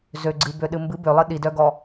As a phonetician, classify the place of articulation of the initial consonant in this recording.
alveolar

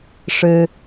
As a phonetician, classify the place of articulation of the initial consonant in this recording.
retroflex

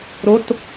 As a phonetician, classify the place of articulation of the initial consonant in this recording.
alveolar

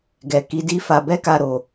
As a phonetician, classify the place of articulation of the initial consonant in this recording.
velar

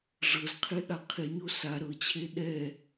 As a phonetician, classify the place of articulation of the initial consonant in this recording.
retroflex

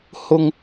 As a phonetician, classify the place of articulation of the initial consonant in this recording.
glottal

